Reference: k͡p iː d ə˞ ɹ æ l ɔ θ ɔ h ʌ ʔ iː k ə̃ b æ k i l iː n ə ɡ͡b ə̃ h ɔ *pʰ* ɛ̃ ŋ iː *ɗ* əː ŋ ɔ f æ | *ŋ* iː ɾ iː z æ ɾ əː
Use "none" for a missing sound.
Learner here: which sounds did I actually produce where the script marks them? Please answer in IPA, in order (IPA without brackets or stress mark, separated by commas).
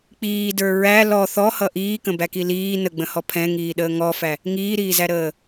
pʰ, ɗ, ŋ